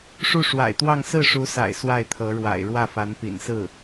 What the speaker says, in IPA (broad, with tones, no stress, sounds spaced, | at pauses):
ʂ u˥˩ ʂ w a̰˨˩ ɪ̯ t̪ w ɑ˥˧ ŋ s ɹ̩˥˩ ʂ u˧˥ s a̰˨˩ ɪ̯ s w a˥˩ ɪ̯ t̪ʰ ɤ˧˥ ɻ w a̰˨˩ ɪ̯ ɻ w ä˥˩ f a˧˥ n p ḭ˨˩ n s ɹ̩˥˩